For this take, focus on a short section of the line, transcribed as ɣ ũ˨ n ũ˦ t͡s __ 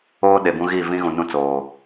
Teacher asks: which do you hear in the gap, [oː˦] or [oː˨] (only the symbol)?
oː˨